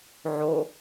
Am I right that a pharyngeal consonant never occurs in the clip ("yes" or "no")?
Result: no